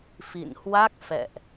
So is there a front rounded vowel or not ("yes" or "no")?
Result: no